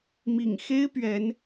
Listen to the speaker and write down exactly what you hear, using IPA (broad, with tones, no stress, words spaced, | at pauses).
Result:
mḭ˨˩ŋxe˥ɪ̯ pɥɛ˧˥n